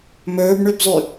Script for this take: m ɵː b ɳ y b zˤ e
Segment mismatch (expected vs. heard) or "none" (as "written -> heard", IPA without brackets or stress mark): e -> y